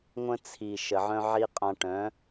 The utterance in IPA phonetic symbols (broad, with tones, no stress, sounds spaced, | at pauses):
ŋʷ ə̃˧ t͡sʰ i˨ ʃ ə˨ ʕ œ̃˦ ʕ i˦ qʼ ã˧ ʈ œ̃˨˦